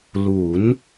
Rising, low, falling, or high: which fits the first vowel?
rising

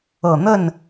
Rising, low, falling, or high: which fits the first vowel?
low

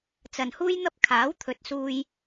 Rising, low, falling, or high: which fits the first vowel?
low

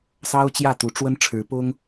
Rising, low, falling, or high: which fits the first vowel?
high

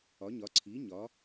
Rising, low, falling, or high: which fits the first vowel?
rising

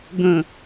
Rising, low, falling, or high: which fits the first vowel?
low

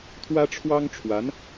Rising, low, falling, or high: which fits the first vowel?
high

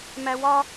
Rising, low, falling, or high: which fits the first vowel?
high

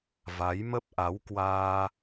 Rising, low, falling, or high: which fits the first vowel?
rising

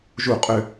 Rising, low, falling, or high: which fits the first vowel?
falling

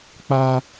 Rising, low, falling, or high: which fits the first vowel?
high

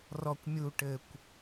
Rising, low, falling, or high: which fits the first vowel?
low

